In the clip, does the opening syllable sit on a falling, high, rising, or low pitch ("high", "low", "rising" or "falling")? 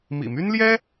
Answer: low